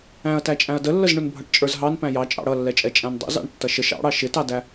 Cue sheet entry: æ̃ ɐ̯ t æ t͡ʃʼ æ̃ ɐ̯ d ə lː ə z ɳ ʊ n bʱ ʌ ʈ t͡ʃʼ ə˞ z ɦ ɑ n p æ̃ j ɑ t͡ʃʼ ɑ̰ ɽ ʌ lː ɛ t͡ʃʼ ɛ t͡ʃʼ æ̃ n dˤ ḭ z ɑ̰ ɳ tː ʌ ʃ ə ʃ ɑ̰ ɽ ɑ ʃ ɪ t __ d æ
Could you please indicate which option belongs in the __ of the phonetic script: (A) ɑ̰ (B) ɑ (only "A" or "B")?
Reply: B